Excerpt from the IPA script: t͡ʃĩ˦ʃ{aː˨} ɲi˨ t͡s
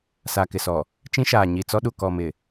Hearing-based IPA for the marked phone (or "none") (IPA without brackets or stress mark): aː˨